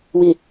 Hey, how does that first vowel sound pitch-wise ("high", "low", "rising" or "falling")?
low